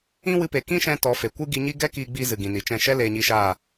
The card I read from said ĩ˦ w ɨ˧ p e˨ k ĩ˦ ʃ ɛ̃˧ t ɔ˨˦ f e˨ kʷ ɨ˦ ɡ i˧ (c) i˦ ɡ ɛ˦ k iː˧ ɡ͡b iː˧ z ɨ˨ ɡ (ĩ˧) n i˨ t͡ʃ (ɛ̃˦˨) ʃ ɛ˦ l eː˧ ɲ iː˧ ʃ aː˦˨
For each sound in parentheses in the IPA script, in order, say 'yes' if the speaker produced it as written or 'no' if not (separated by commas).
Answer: no, no, yes